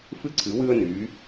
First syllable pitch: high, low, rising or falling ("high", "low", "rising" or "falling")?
high